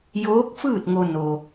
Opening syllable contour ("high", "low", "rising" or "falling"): rising